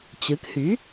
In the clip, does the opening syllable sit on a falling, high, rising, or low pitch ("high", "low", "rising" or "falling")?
rising